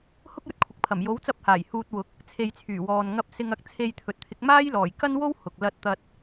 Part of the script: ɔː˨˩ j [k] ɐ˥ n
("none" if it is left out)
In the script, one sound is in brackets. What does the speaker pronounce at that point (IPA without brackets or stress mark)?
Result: k